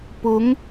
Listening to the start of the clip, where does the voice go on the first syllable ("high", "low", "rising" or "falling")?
rising